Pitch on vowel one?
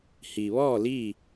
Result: low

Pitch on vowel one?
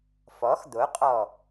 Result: rising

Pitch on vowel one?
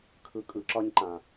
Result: low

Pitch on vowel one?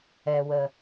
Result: low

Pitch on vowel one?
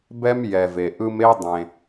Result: high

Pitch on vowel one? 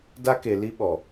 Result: high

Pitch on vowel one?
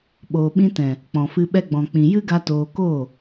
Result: low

